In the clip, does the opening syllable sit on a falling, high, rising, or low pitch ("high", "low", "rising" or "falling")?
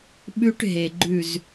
high